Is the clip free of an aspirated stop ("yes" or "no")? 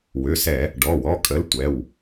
yes